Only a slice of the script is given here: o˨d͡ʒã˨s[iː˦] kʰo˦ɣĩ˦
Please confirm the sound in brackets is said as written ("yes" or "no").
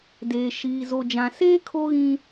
no